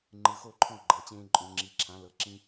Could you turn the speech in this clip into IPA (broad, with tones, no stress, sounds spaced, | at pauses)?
ŋ͡ǃ ɯ˩˧˩ x o˥˩ ǃʰ ɔ̃˥˩ ɡ͡ǃ ɤ˩˧˩ t͡ɕ ẽː˦ ǃʼ õ˩˥ ŋ͡ǁ i˩˧˩ ǁʰ ã˩˥ l ɤ˩˥ ǁ ĩ˦